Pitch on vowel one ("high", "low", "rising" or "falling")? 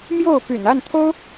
falling